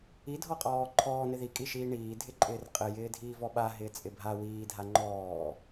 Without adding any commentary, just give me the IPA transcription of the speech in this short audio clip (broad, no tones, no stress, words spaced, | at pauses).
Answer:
idʱɔqʼɔː ǃʰɔːnɪ ðikʼiʃiː ɳiːdʱɪǃʼɪːr qʼɪjɪː dʱiːvɔɓa ɦɪːt͡sʼɪbʱa wiː dʱaŋ͡ǃɔː